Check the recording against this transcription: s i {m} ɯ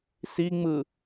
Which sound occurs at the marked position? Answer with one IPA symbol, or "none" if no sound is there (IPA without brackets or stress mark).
ŋ͡m